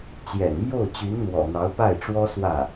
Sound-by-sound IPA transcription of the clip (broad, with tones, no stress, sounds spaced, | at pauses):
t͡ɕ j ɛ̰˨˩ n m j o˥˩ ʊ̯ t͡ɕ y˧˥ n n̪ w ɔ̰˨˩ n̪ ɑ˧˥ ʊ̯ p a˥˩ ɪ̯ ʈ͡ʂ w ɔ˥ s w ä˥˩